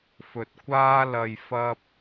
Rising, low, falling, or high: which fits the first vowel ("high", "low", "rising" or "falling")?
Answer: low